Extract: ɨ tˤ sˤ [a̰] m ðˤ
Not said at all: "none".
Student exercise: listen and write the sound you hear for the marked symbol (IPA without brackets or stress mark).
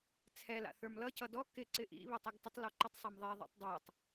a